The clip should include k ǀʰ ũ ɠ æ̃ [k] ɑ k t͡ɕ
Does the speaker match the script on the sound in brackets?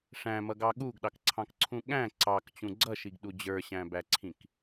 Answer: no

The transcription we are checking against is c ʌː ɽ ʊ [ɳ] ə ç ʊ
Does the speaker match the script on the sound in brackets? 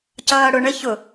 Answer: yes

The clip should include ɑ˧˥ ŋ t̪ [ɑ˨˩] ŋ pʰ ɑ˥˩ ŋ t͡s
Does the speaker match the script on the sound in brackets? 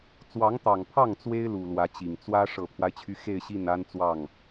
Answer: yes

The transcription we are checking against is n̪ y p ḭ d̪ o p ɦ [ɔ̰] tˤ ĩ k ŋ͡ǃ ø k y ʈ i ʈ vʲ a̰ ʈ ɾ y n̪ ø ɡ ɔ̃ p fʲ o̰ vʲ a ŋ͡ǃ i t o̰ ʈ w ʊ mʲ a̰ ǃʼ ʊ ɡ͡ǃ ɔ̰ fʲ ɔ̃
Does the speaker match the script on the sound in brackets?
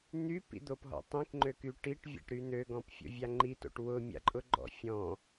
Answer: yes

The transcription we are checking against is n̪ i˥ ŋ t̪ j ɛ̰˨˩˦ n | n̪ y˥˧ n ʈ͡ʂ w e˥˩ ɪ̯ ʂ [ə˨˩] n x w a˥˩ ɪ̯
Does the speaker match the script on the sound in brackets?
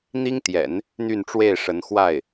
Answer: no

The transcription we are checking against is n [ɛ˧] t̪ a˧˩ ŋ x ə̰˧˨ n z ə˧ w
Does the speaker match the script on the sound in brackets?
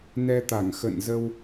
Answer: yes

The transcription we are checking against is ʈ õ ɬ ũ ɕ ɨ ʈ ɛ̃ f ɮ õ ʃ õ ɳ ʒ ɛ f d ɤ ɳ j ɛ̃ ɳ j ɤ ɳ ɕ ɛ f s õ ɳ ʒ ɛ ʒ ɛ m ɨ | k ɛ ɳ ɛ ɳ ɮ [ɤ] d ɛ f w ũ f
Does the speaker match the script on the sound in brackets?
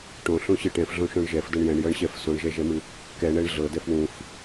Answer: yes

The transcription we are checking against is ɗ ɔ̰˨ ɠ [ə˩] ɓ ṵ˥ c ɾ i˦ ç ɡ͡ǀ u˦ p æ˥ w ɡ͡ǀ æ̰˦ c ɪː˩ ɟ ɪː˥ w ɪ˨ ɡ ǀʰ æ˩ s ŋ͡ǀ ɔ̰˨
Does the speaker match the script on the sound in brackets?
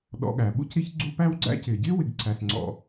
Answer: no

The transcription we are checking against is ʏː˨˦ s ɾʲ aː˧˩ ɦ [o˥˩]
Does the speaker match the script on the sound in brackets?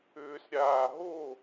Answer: yes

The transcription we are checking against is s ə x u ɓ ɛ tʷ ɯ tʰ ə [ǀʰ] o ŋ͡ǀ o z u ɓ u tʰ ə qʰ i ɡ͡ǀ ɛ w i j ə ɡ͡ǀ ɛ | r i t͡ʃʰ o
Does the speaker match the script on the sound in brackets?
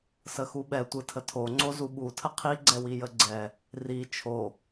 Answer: no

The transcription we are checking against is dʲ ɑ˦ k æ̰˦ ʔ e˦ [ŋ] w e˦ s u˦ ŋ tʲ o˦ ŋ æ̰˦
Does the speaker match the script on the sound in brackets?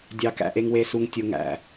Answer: yes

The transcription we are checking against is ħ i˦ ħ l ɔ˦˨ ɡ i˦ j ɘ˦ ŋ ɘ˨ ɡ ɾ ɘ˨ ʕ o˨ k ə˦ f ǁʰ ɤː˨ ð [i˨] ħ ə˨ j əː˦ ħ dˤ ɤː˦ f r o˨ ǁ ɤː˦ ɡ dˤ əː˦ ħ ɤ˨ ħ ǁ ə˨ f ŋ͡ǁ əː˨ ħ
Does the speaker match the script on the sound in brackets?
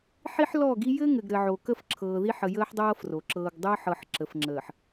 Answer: no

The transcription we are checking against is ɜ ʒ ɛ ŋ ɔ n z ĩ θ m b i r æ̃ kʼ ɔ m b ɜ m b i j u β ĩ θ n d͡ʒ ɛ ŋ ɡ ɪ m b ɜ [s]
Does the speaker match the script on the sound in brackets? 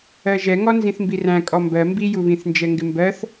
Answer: no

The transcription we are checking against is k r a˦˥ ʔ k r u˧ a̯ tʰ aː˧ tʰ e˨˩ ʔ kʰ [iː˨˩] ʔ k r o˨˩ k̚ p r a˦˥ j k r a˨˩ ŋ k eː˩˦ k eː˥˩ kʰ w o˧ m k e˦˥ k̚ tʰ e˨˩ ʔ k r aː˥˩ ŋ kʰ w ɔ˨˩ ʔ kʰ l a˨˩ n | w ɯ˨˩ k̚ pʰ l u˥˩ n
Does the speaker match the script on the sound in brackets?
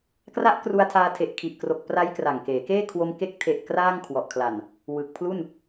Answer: no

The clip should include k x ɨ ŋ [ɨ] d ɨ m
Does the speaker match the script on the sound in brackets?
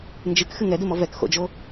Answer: no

